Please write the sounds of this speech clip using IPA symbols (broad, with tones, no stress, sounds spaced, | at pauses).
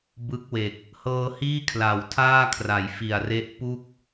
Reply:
b ɯ˦˥ k̚ w e˨˩ k̚ | h ɤː˧ h iː˥˩ kʰ l a˩˦ w tʰ aː˥˩ kʰ r a˩˦ j f i˨˩ a̯ r e˦˥ ʔ p u˥˩ k̚